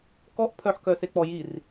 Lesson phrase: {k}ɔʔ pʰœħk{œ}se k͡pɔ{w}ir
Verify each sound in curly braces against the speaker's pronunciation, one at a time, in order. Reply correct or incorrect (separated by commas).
correct, correct, incorrect